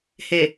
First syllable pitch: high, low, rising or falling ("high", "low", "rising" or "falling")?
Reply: low